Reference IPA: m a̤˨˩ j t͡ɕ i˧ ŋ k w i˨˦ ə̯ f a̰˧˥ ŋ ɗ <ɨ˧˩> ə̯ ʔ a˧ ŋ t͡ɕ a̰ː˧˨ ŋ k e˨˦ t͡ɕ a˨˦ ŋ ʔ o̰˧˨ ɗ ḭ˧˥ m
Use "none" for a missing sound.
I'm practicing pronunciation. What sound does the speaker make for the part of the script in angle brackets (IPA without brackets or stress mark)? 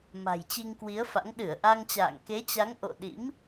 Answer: ɨ˧˩